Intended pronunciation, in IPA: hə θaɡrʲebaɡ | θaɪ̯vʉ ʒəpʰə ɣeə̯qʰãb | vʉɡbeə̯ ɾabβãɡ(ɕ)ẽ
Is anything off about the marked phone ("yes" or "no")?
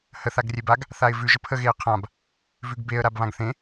yes